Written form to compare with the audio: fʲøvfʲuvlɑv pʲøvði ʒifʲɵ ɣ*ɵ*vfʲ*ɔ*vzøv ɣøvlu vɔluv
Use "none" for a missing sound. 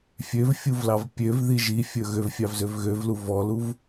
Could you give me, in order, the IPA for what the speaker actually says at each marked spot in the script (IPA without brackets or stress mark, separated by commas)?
ø, ɑ